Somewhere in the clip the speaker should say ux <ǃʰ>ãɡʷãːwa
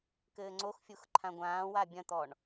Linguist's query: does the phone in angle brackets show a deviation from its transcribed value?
no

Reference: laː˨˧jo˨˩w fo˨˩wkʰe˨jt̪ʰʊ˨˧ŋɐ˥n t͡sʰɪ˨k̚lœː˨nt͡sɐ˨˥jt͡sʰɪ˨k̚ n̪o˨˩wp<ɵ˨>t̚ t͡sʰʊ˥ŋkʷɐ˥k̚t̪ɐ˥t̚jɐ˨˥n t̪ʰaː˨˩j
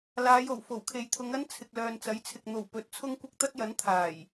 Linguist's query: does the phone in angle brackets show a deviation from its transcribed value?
no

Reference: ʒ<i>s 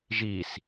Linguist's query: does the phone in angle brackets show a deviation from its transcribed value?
no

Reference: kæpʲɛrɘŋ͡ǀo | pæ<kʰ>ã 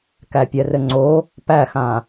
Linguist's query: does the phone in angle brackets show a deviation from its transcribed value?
yes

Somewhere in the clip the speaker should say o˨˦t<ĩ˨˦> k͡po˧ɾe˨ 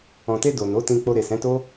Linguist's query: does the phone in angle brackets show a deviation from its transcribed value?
yes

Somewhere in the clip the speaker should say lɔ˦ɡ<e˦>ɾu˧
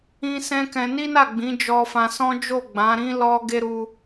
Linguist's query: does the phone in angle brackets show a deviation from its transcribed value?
no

